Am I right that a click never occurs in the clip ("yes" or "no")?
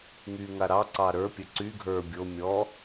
no